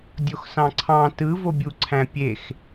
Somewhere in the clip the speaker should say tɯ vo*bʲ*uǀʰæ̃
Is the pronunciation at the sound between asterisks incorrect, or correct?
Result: correct